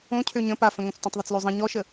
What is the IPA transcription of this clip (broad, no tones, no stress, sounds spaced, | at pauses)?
õ cʰ ø ɲ ə̃ p a f ə̃ ŋ õ t͡s t õ tˤ ðˤ ə t͡s l ø zˤ ə̃ ɲ ɔ ʃ ə